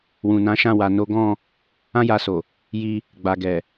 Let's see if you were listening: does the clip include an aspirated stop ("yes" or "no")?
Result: no